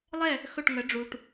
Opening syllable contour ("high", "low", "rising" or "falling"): falling